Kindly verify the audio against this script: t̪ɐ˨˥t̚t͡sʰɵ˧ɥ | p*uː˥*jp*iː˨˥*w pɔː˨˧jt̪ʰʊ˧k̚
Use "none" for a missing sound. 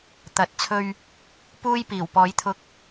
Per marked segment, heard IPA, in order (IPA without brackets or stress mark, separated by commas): uː˥, iː˨˩